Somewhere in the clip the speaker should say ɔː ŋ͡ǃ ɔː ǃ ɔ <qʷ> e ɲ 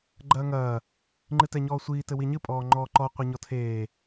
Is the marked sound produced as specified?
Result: yes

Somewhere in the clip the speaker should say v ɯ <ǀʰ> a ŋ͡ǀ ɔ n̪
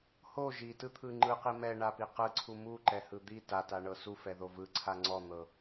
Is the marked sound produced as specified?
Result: yes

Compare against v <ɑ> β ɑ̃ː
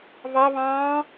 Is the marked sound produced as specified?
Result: yes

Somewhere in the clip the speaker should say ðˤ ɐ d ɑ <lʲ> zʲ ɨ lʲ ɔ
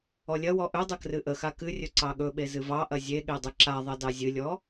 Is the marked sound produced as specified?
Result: no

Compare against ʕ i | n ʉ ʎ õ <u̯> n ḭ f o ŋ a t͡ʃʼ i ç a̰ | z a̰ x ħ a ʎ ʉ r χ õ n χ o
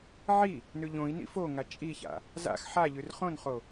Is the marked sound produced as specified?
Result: no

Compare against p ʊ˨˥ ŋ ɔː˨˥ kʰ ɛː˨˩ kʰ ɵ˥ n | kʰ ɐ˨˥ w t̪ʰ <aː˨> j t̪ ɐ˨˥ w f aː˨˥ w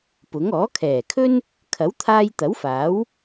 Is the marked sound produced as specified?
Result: no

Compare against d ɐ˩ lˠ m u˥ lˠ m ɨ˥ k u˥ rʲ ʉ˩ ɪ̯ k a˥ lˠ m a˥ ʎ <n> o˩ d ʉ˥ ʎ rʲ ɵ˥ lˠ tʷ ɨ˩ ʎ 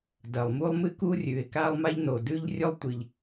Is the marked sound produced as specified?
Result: yes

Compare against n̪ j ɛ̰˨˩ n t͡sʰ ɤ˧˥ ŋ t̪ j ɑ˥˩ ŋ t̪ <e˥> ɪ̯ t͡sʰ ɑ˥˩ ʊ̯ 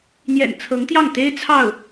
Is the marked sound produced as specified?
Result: yes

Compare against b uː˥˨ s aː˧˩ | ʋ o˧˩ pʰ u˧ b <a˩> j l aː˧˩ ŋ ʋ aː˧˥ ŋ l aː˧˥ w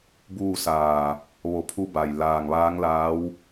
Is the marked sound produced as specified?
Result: yes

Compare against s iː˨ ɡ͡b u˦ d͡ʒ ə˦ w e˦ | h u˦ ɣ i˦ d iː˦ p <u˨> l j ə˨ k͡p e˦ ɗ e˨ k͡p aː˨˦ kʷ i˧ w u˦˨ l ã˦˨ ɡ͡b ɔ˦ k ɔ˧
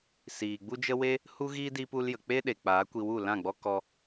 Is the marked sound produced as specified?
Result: no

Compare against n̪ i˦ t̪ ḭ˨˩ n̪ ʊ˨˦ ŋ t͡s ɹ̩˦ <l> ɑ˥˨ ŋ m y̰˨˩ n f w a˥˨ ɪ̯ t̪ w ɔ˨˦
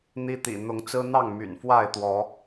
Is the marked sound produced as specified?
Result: no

